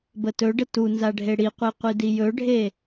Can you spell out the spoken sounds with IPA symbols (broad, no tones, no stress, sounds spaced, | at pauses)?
b ə t ɵ ɖ ə t u n z a ɖʱ e ɽ i qʷ e qʷ i d i j ɵ ɖʱ e